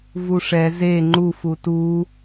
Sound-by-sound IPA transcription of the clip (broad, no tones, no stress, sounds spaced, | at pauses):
v u ʂ ɛ z e ŋ͡ǃ u f u t u